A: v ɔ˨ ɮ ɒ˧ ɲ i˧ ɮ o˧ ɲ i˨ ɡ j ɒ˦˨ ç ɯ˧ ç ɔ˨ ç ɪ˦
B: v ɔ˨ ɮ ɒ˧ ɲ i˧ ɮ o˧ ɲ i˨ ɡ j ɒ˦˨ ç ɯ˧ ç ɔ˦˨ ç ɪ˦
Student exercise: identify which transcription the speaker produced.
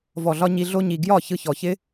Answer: A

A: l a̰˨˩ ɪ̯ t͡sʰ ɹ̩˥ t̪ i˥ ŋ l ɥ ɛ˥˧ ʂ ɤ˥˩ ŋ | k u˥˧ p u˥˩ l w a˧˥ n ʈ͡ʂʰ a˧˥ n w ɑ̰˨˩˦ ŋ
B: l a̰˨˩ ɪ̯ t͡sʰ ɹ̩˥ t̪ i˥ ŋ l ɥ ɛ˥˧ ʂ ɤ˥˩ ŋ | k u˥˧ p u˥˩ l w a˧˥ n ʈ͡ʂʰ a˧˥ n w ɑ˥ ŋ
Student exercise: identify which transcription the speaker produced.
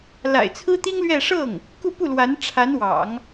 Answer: A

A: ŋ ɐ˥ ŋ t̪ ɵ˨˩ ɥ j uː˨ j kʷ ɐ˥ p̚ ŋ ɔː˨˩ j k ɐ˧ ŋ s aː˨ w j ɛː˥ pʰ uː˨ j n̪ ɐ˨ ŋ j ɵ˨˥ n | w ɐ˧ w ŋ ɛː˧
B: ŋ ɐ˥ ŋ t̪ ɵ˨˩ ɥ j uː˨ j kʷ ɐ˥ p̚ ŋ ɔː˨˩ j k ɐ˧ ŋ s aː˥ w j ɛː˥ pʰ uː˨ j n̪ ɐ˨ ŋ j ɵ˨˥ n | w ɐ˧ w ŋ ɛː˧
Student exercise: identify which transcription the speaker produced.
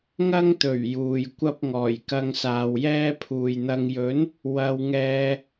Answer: A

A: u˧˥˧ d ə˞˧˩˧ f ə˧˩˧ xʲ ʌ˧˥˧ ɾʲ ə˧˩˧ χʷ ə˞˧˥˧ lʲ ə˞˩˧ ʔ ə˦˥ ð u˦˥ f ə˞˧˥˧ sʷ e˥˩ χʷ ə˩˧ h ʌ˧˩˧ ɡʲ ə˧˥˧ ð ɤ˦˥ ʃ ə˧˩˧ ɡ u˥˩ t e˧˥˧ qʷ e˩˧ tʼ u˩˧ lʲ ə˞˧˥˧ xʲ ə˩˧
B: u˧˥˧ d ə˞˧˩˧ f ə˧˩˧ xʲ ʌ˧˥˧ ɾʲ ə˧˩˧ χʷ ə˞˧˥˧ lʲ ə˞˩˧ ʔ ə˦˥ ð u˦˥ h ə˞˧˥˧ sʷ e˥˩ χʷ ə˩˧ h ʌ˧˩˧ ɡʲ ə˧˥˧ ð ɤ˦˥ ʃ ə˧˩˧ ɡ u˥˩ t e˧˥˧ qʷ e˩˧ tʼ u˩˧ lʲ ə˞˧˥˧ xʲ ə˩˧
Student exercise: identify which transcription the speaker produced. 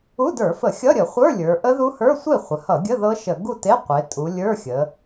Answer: B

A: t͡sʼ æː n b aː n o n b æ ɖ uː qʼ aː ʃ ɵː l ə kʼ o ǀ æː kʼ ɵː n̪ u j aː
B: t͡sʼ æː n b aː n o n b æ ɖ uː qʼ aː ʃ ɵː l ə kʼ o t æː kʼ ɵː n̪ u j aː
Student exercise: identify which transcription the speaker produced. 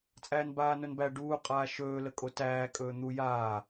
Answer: B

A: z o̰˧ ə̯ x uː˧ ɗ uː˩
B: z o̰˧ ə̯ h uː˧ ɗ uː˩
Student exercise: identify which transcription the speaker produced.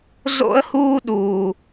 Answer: B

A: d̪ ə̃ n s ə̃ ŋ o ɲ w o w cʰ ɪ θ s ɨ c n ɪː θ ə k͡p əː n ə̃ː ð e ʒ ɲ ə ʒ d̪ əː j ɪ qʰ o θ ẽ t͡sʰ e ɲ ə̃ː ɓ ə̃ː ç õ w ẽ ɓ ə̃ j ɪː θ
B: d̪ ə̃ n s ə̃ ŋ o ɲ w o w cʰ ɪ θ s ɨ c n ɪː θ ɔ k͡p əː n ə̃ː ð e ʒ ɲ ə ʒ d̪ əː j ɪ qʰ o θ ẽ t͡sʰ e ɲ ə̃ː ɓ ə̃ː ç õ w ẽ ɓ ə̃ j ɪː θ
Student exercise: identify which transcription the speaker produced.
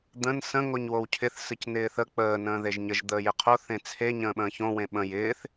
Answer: A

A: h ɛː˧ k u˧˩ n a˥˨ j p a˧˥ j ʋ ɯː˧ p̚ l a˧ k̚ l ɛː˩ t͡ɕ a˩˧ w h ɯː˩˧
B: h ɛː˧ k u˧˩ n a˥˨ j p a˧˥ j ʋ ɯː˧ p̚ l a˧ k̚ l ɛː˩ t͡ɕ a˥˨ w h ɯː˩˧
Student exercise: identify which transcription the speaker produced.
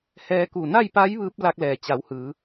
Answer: A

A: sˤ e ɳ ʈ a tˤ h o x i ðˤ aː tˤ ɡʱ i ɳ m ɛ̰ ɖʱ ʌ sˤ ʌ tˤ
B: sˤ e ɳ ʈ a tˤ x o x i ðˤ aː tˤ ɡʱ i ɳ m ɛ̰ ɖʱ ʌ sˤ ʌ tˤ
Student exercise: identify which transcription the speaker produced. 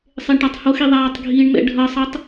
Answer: A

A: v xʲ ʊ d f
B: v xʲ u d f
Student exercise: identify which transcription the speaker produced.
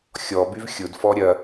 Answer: A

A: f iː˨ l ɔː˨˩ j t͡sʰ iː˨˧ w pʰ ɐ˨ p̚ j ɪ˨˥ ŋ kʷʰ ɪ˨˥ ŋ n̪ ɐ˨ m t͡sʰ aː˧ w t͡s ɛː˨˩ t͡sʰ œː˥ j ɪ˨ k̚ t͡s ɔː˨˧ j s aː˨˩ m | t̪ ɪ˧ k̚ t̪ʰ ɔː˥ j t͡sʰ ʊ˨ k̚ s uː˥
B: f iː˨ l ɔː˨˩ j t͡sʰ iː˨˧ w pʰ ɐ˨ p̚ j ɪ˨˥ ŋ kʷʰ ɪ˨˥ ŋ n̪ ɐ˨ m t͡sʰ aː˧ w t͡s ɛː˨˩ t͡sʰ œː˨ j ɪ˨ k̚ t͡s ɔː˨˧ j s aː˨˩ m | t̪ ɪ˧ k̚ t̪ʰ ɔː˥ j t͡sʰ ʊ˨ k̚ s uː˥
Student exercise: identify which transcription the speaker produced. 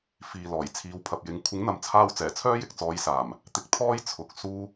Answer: A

